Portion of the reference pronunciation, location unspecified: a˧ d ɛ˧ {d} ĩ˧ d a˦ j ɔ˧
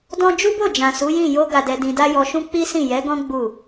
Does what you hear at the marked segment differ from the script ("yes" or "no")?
no